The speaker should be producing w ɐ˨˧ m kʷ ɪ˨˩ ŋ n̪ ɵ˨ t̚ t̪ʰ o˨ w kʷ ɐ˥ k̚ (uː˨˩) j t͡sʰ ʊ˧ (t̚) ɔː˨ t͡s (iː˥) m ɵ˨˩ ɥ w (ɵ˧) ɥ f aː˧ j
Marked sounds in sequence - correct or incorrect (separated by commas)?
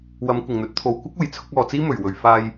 correct, incorrect, correct, incorrect